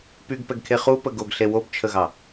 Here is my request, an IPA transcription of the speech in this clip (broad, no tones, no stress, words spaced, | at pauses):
pyɡpɛɡkʰe χupə ɡoɡɬe wobt͡ʃʰəɣɑ